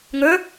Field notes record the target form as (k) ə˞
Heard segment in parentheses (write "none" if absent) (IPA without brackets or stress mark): ŋ